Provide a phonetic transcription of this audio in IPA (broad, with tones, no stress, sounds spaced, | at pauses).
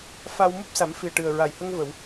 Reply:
f a˧ w m u˦˥ p̚ s a˨˩˦ m f i˨˩ ə̯ ʈ ɨ˨˩ ə̯ ɹ a˨˩ j h ə˧ ŋ v ə˨˩˨ w